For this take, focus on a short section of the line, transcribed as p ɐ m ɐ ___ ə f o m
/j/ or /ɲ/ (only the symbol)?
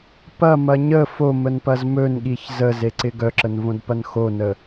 ɲ